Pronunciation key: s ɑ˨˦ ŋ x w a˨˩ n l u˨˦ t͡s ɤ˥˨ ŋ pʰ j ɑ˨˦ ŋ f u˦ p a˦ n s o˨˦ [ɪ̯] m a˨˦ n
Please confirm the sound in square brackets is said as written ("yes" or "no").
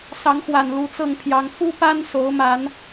no